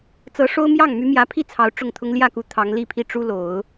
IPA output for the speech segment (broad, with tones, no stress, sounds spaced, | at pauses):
t͡s ɤ˧˥ ʂ o˥ ʊ̯ m j ɑ˥˩ ŋ m y˧˥ m j ä˧˥ pʰ i˥˩ t͡sʰ ɑ˧˥ ʊ̯ ʈ͡ʂ ʊ˥˩ ŋ t̪ʰ ʊ˥ ŋ l j ä˥˩ k u˧˥ t̪ʰ ɑ˧˥ ŋ l i˥˧ pʰ i˥˩ ʈ͡ʂ u˥ l o˨˩˦ ʊ̯